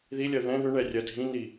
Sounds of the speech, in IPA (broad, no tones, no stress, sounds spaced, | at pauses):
ð i lʲ ɜ ð ɛ̃ ð ʏ ɳ ɛ rʲ ɜ dʱ ĩ n i